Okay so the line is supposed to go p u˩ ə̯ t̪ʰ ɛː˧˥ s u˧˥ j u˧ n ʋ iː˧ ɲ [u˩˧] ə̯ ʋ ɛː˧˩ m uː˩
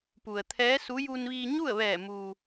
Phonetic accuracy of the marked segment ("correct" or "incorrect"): incorrect